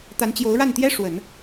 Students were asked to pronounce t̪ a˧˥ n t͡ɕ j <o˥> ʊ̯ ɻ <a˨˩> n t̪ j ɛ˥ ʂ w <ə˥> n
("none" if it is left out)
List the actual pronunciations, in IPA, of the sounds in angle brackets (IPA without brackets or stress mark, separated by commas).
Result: o˧˥, a˥˩, ə˨˩˦